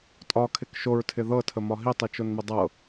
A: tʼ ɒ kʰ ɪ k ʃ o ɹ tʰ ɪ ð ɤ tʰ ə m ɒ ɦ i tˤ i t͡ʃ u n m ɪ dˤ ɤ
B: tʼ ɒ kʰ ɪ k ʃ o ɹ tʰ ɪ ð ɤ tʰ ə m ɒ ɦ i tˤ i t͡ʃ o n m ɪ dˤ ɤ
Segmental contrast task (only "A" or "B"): B